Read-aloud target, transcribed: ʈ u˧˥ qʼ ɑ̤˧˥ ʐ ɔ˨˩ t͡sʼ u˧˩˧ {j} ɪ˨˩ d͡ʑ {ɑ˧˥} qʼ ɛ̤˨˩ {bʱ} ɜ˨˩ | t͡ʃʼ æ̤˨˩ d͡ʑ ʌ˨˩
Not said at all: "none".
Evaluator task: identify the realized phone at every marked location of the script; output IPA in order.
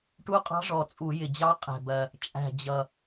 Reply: j, ɑ˧˥, b

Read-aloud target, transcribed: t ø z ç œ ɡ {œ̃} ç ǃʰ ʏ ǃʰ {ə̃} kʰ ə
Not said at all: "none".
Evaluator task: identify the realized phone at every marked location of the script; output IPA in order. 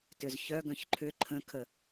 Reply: œ̃, ə̃

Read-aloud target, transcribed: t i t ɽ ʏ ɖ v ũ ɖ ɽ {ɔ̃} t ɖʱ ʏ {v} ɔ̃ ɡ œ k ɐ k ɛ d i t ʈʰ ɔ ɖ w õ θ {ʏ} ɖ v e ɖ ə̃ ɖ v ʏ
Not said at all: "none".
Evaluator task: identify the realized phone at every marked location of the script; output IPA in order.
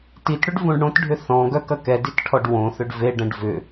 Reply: õ, θ, ʏ

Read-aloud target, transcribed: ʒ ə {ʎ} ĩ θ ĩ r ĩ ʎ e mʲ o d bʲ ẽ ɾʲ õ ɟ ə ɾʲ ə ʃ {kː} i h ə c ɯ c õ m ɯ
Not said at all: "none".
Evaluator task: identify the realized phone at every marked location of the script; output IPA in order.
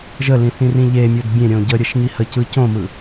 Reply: l, ŋ

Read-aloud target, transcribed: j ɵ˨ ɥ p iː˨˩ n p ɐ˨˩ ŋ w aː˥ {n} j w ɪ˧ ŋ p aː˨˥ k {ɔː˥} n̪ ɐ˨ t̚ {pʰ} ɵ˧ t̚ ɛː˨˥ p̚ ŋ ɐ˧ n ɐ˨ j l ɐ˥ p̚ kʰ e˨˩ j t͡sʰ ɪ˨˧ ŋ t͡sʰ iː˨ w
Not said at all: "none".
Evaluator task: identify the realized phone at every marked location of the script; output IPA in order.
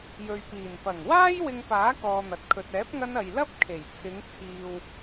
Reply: none, ɔː˧, kʰ

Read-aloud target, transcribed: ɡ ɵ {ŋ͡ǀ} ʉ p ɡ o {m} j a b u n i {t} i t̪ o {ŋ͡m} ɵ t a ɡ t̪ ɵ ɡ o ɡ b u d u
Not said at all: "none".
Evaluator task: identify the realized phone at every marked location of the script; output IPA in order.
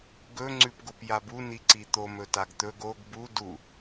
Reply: ŋ͡ǀ, p, ǀ, m

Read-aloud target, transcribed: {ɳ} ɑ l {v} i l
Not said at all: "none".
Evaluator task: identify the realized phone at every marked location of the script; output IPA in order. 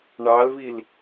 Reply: ɳ, v

